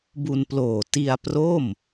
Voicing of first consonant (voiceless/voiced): voiced